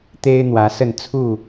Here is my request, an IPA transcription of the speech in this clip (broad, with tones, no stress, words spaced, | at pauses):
t̪e˦ɪ̯n̪wä˨˦sə˥˨n t͡sʰu˥˨